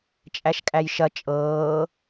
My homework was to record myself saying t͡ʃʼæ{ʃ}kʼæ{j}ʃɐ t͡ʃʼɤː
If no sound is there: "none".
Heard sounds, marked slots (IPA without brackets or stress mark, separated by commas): ʃ, j